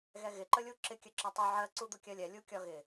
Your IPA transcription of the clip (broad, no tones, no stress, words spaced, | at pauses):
ɣɛɣɪ ǃəlʲuǁɪ kʲəǁɒtˤu ʕɜ ǀud̪ʊkʲɜlʲɛ lʲukʲɒɣɪ